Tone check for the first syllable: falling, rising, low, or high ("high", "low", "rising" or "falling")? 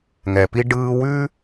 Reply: low